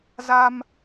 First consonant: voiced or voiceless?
voiced